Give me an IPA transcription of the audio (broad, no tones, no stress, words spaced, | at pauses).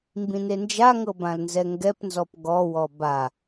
mbĩnend͡ʒaŋɤ bãlnzɛŋɡɛpnzɔp ɡɔwɔ ba